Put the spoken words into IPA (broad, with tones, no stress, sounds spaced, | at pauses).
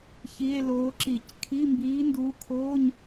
ç i˧˥˧ e̯ l oː˧˥ ǁ i˧˩˧ c kʰ i˧˥˧ m b iː˧˥ n d uː˧˥ kʰ oː˧˥˧ ɲ